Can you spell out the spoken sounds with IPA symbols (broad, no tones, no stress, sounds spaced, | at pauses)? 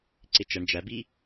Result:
ǀ ɪ t͡ʃ ʌ ɳ d͡ʒ æ b i